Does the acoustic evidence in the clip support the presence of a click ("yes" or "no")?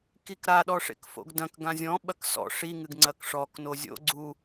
yes